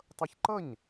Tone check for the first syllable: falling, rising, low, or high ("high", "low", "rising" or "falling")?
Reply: high